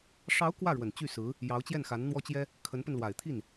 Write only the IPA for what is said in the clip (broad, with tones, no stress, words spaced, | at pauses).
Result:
ʂɑ˧˥ʊ̯ kwä˥˩ɻwə˨˩n t͡ɕy˥˩sɹ̩˧˥ | jɑ˧˥ʊ̯t͡ɕjɛ˥˩nxa˧˥n n̪wɔ˥t͡ɕjɛ˥ | kʰə˧˥npə˧nlwa˨˩ɪ̯t̪ʰi˥˩n